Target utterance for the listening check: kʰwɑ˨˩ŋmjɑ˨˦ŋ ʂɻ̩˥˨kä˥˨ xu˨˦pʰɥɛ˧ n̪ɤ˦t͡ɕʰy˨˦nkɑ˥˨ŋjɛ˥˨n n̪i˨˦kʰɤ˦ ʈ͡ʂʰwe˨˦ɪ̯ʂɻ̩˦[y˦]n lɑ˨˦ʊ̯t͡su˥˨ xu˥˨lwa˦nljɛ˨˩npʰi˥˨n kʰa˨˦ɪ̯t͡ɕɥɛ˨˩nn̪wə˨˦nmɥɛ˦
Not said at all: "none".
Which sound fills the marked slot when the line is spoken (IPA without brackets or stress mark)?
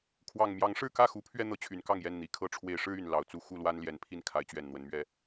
y˨˩